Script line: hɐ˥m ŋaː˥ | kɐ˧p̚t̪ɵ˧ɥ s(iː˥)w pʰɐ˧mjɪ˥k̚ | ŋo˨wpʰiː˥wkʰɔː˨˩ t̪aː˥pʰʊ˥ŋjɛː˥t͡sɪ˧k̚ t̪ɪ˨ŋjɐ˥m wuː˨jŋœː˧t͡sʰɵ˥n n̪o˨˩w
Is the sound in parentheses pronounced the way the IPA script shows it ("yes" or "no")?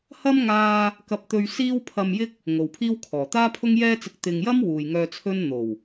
yes